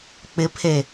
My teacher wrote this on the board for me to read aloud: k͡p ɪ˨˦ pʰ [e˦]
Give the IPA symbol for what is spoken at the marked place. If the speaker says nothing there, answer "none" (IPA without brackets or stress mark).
e˨